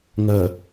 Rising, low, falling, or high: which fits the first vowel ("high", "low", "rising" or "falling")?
low